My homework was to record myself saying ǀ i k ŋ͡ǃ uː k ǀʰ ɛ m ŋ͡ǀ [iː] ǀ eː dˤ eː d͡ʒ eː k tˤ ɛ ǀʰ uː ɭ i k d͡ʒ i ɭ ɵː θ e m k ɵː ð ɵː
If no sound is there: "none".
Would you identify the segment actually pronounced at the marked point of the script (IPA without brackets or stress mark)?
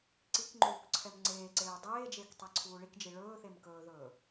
eː